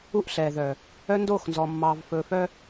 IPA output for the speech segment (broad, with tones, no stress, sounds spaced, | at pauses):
u˦ ʔ ɬ ɛː˨ ð œ˨ | œ˦ n d oː˦˨ x n z ɔ˨ mː ɑː˨ v f ɵː˨ f œ˦